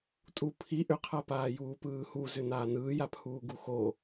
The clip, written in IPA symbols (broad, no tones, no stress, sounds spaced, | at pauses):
tʼ u pʰ i ʔ ʏ qʰ a p aː j uː p ɯː h u z ʏ n aː n ɯː j a pʰ uː ɡ u x o